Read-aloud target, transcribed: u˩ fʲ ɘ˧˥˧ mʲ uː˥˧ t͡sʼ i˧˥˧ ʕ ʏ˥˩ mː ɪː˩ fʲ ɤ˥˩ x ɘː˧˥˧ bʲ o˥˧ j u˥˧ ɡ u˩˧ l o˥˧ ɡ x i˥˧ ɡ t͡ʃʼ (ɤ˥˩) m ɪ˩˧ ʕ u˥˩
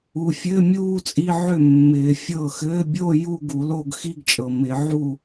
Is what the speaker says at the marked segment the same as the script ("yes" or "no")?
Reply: no